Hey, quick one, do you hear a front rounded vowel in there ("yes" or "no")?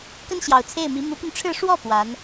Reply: yes